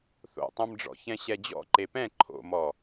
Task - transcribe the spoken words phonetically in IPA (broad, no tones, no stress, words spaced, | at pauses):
θo̰tˤɛ̃mɖ͡ʐɔ̰çɛ̃ ɕɛd͡ʑɔ̰ ǃepɛ̃ ǃʰo̰mɔ